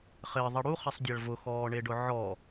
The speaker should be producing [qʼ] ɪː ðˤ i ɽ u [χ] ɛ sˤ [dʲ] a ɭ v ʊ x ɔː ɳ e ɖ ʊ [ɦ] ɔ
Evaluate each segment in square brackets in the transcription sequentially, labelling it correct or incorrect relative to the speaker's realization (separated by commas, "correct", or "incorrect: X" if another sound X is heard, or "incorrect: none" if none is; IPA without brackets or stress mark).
incorrect: χ, correct, correct, incorrect: ʕ